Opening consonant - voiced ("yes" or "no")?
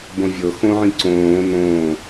yes